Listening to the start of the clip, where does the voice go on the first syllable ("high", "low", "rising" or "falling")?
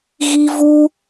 high